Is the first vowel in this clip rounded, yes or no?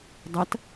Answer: no